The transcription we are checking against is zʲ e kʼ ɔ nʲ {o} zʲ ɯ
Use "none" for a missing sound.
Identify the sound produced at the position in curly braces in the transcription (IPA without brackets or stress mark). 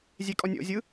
o̰